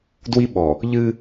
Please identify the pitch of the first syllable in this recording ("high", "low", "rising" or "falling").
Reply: high